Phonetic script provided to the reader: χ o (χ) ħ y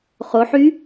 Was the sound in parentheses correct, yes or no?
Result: no